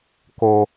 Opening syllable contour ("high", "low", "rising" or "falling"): high